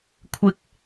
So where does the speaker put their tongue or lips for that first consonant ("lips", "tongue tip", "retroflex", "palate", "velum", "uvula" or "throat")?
velum